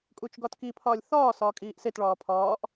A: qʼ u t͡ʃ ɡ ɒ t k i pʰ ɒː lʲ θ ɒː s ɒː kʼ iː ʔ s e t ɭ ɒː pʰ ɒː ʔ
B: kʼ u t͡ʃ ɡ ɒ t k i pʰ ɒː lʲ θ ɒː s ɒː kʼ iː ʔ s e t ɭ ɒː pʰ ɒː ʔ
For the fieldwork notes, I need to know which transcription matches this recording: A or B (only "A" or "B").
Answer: B